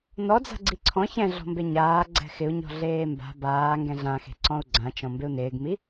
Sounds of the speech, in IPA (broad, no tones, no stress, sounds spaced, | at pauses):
n ɔ d͡z a̤ ɡ͡ǀ i ǀʰ ɔ̃ ç ɛ̃ ɮ ɔ̤ m b e ɲ aː ɡ͡ǀ ɛ̤ x ɪ u̯ ɲ ɔ̤ ɮ eː m b a̤ b aː ŋ ɡ ɛ̃ ɮ ã x e̤ ǀ ɔ̃ u̯ ɡ͡ǀ ã t͡ʃ ɔ̃ m b ɪ u̯ n ɪː ɡ m i